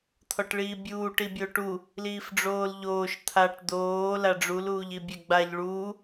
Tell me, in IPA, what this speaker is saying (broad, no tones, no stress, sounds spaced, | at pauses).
t̪ʰ ɔ ʈ ɭ iː bʲ uː ʈ i bʲ o ʈ u | l iː f ɖ͡ʐ oː l ʎ oː ʃ t̪ʰ a ʈ d̪ oː l a ɖ͡ʐ u l uː ʎ i bʲ ɛ ɡ͡b a ʎ ɭ uː